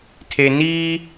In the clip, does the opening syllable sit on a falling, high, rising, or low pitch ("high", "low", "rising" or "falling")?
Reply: low